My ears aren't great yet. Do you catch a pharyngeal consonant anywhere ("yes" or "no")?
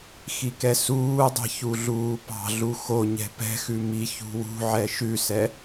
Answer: yes